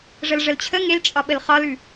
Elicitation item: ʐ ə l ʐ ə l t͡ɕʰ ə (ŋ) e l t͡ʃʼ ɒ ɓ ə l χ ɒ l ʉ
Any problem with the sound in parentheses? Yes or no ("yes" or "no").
no